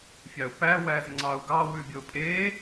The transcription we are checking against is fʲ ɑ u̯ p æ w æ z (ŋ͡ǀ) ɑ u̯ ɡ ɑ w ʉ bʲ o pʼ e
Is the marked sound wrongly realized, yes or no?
no